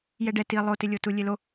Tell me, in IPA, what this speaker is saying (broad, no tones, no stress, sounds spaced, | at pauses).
j ɛ ɖ ɛ t i lˠ o t ɪ lʲ o t u lʲ e l o